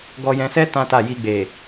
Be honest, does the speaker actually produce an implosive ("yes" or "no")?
no